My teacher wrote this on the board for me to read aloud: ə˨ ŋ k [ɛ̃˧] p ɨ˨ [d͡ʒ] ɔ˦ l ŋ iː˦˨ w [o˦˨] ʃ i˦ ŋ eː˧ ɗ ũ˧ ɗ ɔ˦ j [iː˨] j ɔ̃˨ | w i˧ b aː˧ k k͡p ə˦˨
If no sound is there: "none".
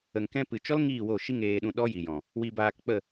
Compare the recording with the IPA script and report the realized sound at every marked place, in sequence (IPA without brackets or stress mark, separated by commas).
ɛ̃˧, t͡ʃ, o˦˨, i˨